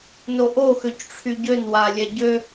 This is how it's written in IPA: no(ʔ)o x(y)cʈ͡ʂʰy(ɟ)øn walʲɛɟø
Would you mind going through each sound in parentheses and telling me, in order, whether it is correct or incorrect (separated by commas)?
correct, incorrect, correct